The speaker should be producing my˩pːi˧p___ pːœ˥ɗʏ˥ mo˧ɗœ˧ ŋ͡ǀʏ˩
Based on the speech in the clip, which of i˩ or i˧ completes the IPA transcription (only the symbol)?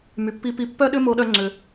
i˧